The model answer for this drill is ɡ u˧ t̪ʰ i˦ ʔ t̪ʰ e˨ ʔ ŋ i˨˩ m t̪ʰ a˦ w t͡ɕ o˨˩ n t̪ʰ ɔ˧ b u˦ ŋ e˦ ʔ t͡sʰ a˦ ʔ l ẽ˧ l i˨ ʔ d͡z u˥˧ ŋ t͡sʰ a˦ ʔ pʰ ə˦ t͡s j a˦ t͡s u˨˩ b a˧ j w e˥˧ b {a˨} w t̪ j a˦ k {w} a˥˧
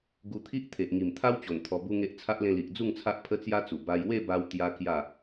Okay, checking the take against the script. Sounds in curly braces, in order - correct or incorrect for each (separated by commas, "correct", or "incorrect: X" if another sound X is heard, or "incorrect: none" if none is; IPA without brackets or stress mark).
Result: incorrect: a˧, incorrect: j